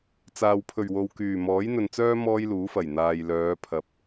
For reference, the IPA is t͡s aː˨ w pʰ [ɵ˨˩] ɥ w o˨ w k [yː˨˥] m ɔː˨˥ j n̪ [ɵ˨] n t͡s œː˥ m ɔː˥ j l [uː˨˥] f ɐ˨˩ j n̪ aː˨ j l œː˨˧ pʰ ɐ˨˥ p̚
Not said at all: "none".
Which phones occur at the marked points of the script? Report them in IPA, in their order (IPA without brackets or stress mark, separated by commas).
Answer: ɵ˨˩, yː˨˩, ɵ˨, uː˨˥